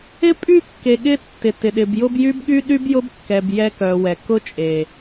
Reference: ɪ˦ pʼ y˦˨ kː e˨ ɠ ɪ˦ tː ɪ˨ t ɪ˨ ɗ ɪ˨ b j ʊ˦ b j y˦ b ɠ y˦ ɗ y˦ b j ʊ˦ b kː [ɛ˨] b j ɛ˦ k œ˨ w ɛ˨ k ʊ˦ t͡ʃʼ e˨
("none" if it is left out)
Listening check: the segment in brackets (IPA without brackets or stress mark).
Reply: ɛ˨